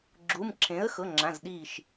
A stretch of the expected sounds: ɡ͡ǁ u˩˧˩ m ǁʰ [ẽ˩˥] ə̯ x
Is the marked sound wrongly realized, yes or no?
no